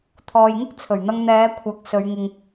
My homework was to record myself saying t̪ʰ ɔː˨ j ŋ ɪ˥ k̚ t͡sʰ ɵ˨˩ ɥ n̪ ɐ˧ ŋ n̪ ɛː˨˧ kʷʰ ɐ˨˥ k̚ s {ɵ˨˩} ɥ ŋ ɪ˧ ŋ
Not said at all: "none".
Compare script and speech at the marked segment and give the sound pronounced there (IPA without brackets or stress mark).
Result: ɵ˨˧